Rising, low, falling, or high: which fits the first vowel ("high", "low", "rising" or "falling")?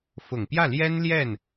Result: low